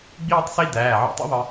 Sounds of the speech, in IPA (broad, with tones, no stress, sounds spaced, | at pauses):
ɡ͡b iː˥˧ tˤ s i˥˧ d æː˩˧˩ ʕ ɔ̰˧ tˤ ḭ˥˧ ðˤ ə˧